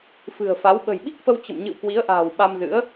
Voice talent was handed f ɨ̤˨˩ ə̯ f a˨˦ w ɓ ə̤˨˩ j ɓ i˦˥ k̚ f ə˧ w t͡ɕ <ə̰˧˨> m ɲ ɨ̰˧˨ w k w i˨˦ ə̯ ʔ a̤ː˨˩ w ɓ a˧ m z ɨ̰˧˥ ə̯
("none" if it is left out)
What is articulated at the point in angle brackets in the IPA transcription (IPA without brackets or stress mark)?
ə̰˧˨